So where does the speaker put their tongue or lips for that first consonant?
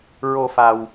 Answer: tongue tip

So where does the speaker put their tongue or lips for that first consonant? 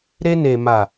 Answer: tongue tip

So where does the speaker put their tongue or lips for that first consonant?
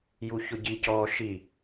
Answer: palate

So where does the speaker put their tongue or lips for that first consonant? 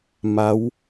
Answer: lips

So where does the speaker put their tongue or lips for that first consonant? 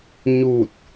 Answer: palate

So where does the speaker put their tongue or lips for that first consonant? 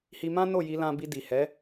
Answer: throat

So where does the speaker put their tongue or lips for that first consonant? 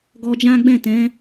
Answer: velum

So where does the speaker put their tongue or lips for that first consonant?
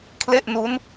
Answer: velum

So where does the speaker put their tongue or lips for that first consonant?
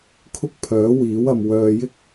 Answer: velum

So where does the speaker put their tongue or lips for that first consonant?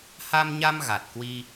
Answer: throat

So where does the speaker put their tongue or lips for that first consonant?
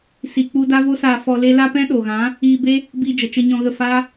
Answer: tongue tip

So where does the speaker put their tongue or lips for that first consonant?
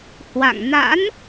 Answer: throat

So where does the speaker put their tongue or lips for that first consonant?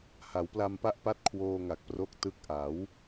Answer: throat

